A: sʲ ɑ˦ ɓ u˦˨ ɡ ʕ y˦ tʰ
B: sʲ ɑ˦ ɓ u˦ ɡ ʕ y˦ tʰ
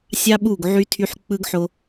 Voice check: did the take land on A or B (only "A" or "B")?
A